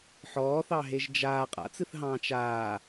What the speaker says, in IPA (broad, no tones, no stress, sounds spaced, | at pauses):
ħ ɔː θ ɑ ɦ e ʒ d͡ʒ aː qʼ a̰ t͡s ɨ θ ɦ ɑ̃ː t͡ʃ aː